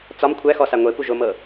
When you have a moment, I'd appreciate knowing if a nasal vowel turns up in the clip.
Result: no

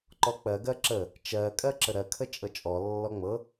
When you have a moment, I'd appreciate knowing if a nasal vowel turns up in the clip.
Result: no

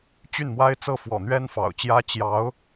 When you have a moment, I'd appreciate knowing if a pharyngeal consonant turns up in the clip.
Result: no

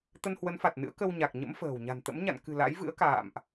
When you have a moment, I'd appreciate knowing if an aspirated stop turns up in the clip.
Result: no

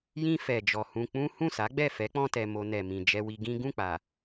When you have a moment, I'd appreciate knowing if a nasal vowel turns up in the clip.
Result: yes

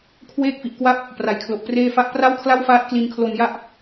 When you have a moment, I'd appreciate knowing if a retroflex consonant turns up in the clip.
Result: no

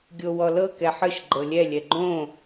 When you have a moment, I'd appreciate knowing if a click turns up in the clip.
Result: yes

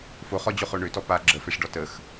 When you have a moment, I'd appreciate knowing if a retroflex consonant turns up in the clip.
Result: yes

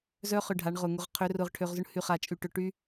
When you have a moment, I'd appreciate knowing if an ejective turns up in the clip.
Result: yes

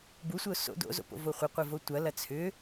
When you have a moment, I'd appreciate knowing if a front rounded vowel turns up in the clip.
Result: yes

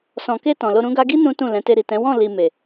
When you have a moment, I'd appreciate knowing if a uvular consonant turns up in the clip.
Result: no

